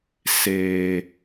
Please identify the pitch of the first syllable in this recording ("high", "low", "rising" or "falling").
low